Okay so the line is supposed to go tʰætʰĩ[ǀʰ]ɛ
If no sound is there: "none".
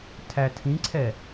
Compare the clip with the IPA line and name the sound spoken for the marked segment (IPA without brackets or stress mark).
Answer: ǀʰ